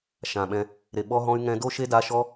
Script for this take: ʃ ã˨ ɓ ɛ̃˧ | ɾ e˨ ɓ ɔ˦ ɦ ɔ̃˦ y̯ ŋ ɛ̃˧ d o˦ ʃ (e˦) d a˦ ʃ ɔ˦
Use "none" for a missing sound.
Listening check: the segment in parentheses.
e˦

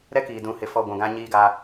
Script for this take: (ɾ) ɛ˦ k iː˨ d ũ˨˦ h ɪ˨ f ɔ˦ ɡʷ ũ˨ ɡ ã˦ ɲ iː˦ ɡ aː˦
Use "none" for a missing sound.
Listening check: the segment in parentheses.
ɾ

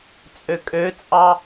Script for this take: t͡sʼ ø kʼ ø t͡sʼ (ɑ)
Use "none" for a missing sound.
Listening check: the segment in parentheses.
ɑ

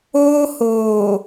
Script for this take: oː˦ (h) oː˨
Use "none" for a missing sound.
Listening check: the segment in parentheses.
h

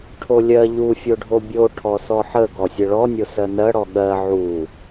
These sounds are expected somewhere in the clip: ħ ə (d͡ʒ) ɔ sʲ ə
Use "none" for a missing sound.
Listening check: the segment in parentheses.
ɡ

